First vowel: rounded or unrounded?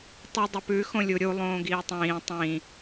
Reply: rounded